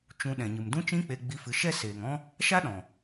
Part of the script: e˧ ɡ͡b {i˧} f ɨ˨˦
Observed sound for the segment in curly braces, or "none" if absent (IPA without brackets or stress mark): i˧